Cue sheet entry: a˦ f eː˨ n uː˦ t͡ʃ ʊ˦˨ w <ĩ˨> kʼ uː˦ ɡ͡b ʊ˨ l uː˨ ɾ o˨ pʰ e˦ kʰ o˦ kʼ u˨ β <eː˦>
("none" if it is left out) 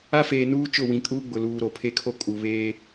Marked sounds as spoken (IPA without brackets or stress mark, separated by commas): ĩ˨, eː˦